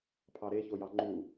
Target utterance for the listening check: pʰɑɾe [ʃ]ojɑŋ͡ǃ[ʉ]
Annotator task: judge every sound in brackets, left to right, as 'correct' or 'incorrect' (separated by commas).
incorrect, incorrect